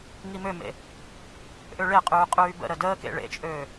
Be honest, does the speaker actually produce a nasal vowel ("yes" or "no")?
no